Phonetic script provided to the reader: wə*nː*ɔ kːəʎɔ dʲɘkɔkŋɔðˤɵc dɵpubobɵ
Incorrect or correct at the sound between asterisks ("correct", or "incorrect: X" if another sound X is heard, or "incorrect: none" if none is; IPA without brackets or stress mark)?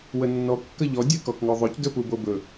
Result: correct